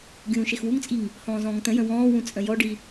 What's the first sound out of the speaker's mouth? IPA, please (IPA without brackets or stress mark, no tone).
ɡʲ